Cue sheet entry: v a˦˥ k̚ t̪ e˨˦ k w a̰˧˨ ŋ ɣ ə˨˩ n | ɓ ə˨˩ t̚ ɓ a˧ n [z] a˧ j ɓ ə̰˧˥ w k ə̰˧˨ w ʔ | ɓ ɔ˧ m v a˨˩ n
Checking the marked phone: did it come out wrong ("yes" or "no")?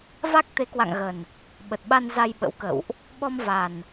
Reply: no